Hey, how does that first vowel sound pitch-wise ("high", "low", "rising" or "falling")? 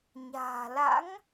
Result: low